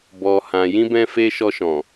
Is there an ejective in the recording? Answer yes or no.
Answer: no